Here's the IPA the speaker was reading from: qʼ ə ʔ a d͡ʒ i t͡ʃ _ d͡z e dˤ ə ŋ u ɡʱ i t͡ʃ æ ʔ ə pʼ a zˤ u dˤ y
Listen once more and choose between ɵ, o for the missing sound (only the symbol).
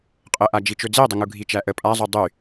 ɵ